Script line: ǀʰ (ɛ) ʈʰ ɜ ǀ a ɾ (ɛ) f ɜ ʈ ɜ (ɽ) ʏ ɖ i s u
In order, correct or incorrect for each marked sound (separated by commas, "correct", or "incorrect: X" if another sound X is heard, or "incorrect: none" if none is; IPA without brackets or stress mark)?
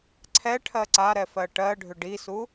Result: correct, correct, incorrect: ɖʱ